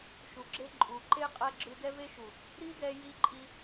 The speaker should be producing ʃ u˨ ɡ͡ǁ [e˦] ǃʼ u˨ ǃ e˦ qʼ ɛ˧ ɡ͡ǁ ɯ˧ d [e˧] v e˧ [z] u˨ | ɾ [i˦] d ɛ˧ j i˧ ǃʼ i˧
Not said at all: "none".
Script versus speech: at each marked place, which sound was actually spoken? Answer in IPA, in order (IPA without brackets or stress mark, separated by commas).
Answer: e˧, ɛ˧, ʃ, i˦